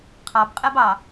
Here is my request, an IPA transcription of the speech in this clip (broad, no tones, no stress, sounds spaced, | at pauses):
qʰ ɑ b qʼ e b ɑ